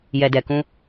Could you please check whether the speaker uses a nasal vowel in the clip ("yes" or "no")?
yes